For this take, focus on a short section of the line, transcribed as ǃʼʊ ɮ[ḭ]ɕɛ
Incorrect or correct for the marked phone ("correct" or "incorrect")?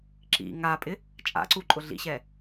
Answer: correct